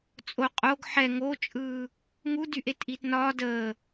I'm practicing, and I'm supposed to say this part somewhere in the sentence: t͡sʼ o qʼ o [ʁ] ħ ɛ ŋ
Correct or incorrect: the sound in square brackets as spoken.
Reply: incorrect: ɡ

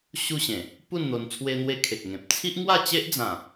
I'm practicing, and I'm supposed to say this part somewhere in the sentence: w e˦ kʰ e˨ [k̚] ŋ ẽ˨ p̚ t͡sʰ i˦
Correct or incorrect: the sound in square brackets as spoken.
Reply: correct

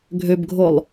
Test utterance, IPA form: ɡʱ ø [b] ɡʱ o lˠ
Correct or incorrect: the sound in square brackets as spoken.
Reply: correct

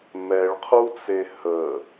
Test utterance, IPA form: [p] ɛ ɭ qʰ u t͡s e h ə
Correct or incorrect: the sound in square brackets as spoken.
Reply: incorrect: m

